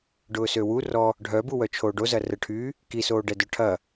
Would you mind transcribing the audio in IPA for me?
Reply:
ɖ ʊː s ø w u r ɔ | ɖʱ œ b u w œ t͡ʃʰ oː ɖ o z ɐ r ə ʈʰ yː | k i s oː ɖ ɛ d œ ʈʰ ɐ

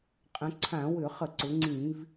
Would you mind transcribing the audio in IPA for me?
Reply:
qʼ ə̃˩˧ ǀʰ ã˧˩˧ w ʏ˧˩˧ χ ə˧˩˧ ǀ ʊ˩˧ ŋ͡ǀ ĩ˧˩˧ v

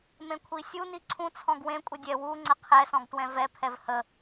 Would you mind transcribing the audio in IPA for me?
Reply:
m ẽ kʷʰ i sʲ u n i ǀʰ ũ t͡sʰ ɔ̃ ɡ w ẽ kʷʼ ə dʲ ɛ w u ŋ͡ǀ ə qʰ ɛ s ɔ̃ ɡ t w ɛ̃ v ɛ pʰ ɛ v h ə

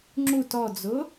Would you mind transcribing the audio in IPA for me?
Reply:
ŋ͡ǁ u t ɔ d͡z ʊ

